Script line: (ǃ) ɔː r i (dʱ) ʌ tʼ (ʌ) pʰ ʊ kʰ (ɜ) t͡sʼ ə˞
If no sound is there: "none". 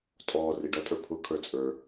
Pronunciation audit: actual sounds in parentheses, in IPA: tʼ, ɖ, ə˞, ə˞

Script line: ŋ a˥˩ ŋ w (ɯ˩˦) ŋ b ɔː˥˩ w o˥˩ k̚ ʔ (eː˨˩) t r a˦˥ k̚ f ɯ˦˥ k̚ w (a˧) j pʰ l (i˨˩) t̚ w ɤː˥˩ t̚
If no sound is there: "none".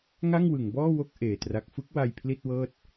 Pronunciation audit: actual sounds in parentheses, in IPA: ɯ˩˦, eː˨˩, a˧, i˥˩

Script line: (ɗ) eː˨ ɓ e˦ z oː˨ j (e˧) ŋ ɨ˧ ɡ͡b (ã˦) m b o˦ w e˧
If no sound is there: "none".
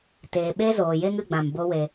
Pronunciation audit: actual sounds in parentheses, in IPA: t, e˦, ã˨

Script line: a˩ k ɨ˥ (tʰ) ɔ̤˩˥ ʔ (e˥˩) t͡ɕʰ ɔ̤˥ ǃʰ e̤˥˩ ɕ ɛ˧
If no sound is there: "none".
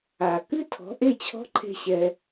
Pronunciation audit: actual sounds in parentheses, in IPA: tʰ, e˥˩

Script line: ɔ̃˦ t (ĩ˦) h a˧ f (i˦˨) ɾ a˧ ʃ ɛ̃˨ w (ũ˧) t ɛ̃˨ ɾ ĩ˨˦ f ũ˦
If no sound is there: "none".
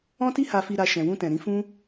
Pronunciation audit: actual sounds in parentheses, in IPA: i˦, i˧, ũ˧

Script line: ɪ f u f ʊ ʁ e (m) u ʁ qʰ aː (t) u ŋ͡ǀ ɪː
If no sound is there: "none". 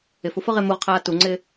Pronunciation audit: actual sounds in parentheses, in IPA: m, t

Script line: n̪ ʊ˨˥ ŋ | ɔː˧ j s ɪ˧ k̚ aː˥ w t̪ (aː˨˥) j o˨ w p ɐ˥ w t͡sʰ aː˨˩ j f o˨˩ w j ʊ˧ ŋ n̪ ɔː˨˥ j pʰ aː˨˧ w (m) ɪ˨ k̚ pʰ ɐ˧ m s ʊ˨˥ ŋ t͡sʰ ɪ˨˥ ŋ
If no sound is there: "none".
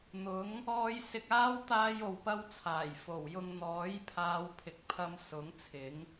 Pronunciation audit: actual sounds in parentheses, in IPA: aː˥, pʰ

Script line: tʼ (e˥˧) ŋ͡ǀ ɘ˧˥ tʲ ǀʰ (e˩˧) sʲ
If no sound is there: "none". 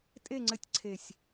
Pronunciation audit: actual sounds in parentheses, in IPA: e˥˧, e˨˩

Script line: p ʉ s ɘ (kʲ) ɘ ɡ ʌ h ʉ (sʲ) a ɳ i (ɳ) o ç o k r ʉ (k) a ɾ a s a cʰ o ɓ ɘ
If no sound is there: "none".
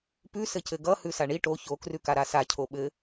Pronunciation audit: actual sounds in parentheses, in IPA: c, s, ʈ, k

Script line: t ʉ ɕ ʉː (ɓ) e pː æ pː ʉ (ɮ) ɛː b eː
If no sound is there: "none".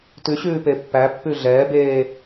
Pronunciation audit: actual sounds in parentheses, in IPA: p, ɮ

